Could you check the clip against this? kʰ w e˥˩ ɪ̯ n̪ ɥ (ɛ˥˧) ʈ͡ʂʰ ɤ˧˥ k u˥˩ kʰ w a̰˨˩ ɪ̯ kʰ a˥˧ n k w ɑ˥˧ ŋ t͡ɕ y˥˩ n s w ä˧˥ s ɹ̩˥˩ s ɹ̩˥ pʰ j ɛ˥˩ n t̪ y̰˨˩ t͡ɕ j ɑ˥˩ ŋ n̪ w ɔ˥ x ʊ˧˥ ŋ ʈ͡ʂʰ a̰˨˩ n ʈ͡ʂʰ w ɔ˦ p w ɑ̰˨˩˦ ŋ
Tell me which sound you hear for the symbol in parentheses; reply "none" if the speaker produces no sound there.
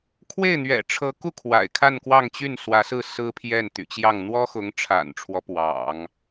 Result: ɛ̰˨˩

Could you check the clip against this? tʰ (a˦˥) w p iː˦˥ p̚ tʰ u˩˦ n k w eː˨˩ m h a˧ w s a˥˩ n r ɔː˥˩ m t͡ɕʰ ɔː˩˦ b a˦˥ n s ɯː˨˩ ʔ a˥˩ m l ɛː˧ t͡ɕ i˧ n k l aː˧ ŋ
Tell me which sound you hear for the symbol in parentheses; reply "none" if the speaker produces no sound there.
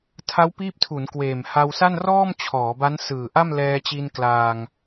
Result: a˦˥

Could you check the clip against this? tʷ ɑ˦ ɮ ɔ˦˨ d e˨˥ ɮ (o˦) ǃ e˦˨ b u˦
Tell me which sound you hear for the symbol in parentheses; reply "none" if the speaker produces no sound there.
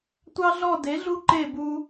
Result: u˦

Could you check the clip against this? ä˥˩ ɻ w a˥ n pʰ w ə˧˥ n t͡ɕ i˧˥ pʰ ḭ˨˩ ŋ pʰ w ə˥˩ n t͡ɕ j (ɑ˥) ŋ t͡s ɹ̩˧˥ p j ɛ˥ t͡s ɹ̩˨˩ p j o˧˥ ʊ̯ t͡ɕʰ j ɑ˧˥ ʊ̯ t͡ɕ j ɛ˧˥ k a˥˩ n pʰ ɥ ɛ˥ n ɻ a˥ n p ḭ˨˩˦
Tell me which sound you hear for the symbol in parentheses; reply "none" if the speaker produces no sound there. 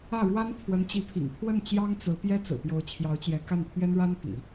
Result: ɑ˥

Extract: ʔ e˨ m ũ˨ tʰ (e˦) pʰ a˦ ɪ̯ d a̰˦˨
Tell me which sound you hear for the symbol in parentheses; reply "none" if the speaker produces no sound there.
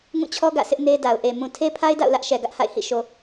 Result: e˦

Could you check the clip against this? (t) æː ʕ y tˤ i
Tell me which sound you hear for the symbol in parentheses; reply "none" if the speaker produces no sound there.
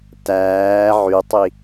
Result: t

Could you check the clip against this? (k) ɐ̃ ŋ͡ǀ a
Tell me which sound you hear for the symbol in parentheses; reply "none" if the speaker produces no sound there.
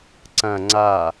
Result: ǀ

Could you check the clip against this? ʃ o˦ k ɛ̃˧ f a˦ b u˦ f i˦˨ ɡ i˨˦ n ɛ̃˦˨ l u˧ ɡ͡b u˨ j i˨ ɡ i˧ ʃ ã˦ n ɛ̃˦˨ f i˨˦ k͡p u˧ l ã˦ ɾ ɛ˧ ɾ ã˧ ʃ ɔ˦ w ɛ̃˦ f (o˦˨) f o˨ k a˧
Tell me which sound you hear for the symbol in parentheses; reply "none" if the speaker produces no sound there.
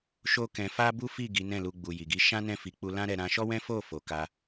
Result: o˦˨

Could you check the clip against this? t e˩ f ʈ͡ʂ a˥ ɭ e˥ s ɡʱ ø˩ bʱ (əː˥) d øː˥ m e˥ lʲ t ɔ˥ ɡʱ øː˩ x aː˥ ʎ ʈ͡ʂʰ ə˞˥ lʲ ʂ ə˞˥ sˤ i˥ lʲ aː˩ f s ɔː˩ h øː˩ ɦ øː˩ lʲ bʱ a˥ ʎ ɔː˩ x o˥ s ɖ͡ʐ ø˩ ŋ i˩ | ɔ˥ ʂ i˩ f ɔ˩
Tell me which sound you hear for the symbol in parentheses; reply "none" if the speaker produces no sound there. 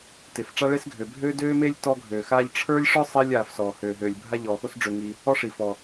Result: øː˥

